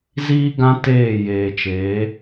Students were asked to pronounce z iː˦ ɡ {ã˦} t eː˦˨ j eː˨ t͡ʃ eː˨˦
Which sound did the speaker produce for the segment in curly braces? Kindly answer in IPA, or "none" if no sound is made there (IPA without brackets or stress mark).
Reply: ã˦